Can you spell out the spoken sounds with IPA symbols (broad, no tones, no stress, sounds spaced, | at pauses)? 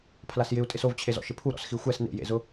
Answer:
pʰ l a s j ɪ u̯ tʼ ɪ s o v t͡ɕʰ e z ɔ̰ ʃ ɪ pʰ u ɾ ɔ̰ s x i xʷ ɛ s n ḛ j ḛ z ʊ